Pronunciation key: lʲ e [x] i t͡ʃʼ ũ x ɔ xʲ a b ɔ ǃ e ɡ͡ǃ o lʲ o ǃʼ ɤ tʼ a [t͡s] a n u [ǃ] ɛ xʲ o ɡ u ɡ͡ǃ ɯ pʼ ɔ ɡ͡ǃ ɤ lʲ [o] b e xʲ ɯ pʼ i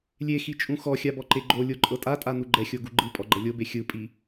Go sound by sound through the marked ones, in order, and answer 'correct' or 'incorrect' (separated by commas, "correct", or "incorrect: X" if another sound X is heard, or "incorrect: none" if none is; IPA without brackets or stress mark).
correct, incorrect: tʼ, incorrect: ɡ͡ǃ, correct